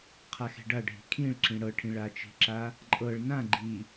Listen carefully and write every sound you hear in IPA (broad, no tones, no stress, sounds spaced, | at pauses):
qʰ a x e̤ ɖ a ɖʱ i̤ kʰ ĩ ɭ ǁ ĩ ɽ ɤ ʈʰ ĩ ɭ a t͡ʃ i̤ ǁ a | ǃʼ ɤ ɭ n ã ɡ͡ǃ i